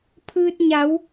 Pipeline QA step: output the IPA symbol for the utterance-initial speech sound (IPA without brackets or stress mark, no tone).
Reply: pʰ